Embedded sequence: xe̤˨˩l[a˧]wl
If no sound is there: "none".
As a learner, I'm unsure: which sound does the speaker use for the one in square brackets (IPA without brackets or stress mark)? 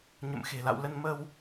a̰˧˨